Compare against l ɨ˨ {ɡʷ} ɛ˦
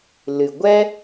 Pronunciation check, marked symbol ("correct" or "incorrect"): correct